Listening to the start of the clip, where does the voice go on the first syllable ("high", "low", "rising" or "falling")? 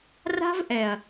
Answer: high